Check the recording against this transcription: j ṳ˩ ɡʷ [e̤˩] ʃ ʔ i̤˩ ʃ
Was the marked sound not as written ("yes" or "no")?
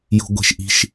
no